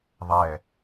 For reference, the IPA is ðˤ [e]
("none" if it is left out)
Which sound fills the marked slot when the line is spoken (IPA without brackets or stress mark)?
ɛ